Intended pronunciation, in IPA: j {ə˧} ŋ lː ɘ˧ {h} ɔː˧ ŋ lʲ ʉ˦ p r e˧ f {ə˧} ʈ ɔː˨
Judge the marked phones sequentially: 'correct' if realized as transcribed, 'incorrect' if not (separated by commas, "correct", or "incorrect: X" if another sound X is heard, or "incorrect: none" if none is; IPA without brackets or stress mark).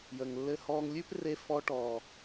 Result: incorrect: ə˨, correct, incorrect: ɔ˧